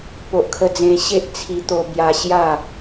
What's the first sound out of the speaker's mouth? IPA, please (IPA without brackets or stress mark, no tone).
p